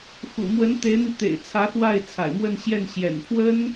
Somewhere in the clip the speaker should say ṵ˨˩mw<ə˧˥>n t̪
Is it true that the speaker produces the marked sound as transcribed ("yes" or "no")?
yes